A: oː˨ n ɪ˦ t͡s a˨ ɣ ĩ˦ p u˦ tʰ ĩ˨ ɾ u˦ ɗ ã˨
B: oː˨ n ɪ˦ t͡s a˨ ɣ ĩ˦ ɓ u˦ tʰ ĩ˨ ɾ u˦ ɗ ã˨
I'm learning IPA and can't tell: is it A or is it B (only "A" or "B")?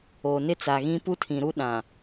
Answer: A